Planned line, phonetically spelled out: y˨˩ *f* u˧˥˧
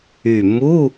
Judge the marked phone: incorrect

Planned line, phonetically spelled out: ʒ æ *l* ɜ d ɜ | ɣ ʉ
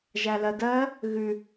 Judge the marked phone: correct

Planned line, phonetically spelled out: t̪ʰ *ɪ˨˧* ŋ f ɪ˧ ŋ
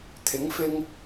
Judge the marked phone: incorrect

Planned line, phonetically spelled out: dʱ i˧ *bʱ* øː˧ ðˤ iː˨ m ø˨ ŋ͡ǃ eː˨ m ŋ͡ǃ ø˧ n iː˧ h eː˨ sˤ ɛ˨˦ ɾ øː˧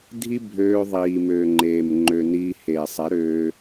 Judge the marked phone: correct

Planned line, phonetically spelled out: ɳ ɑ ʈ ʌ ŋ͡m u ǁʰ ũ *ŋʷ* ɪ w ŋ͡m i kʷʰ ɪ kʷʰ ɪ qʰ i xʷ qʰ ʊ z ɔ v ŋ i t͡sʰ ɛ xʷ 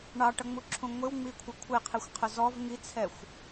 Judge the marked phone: correct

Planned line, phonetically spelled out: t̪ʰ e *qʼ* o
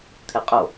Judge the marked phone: correct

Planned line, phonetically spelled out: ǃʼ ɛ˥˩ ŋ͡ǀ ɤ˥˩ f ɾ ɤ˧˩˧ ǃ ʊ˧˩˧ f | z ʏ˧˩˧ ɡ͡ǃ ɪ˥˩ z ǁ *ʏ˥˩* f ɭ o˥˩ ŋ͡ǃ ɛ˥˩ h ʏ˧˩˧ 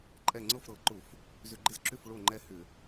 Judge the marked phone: correct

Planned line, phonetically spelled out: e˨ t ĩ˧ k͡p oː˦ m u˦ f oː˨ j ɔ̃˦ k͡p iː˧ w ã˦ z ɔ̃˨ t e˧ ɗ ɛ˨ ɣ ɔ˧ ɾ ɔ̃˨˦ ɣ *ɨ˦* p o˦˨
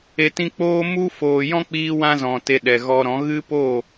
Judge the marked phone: correct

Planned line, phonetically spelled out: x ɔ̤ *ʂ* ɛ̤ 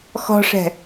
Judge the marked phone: correct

